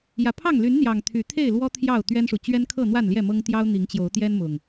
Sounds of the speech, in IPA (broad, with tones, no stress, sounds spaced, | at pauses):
j ä˨˩ pʰ ɑ˥˨ ŋ l y˨˦ n n̪ j ɑ˨˩ ŋ t̪ʰ y˨˦ t̪ʰ e˥˨ ɪ̯ l w ɔ˦ t̪ʰ j ɑ˥˨ ʊ̯ t̪ ɥ ɛ˦ n ʂ u˨ t͡ɕ ɥ ɛ˦ n kʰ ɤ˥˨ n̪ w a˥˨ n l j ɛ˥˨ m ɤ˦ ŋ t̪ j ɑ˦ ʊ̯ n̪ i˨˦ ŋ t͡ɕ j o˨˦ ʊ̯ t̪ j ɛ˦ n m ʊ˨˩ ŋ